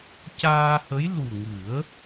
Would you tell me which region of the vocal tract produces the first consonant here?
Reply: palate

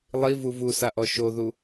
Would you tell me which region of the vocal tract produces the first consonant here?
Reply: tongue tip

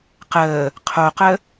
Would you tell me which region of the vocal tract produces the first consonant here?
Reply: uvula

